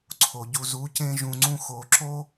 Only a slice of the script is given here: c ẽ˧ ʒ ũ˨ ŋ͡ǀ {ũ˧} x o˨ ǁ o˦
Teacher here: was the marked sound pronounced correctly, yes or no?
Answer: yes